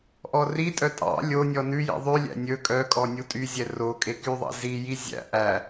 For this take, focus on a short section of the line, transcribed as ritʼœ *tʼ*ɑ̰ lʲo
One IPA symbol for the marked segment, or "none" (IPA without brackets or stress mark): tʼ